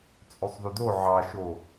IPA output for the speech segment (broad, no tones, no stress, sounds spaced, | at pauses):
t͡sʼ ø sˤ ð ʉ d o ʕ ɑ ʃ o